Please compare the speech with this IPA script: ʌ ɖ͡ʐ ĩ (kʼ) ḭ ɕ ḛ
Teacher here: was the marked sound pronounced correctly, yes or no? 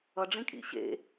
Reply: yes